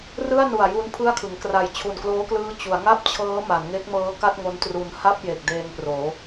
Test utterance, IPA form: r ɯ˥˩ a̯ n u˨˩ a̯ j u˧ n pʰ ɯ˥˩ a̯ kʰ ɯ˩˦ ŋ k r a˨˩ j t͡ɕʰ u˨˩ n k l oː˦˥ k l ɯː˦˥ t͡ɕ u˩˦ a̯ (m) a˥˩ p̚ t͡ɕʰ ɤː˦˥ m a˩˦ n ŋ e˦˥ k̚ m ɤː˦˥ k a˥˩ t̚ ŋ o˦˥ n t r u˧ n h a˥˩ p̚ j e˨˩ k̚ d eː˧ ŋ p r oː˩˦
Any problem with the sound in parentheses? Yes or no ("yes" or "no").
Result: yes